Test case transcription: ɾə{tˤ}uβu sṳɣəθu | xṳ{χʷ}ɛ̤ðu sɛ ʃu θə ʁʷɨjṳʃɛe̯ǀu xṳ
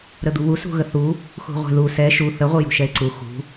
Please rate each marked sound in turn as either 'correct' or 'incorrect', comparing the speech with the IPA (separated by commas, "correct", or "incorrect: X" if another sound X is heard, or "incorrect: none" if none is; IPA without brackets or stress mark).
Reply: incorrect: d̪, incorrect: ʁʷ